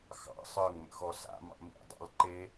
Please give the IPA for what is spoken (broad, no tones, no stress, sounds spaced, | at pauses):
x ɑ̰ sˤ ə˞ ŋ m ə̰ x ɔ s a̰ m ɑ̰ m ḭ dˤ ɑ̰ l ǃ e